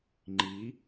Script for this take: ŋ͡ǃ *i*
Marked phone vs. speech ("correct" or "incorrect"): correct